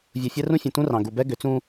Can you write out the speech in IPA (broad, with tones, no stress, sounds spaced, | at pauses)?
vʲ u˨ fʲ ɛ˦ r ũ˦ fʲ ũ˨ t ũ˦ r ɑ̃˨ ɡ u˨ b ɛ˦ ɡ ʏ˨˦ t͡s ũ˦